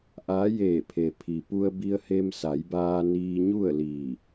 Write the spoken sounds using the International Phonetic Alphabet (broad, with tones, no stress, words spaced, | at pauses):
ʔa˧˥je˧˩ pʰe˩pʰi˩ pu˧ə̯bi˧ə̯he˧msa˩˧j baː˧niː˧ɲu˥˨ə̯ li˧˩